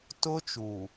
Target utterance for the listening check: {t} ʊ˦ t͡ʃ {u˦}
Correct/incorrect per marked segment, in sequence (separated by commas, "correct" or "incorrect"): correct, incorrect